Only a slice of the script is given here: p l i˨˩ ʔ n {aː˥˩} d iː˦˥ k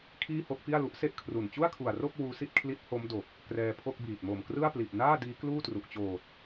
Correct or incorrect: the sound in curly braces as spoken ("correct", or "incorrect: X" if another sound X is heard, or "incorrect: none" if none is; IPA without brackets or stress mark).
correct